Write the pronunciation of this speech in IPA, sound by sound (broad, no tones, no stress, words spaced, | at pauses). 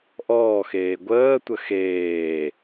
ʔɔːxeː ɡʷəːtʷə xeː